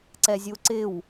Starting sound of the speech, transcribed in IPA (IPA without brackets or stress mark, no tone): ǀ